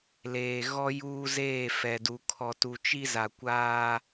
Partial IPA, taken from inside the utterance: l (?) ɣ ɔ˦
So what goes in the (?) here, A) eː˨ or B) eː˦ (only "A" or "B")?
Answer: A